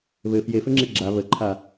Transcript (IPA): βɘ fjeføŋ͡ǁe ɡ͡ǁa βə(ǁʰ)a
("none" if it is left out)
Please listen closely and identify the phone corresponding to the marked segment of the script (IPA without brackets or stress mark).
ǃʰ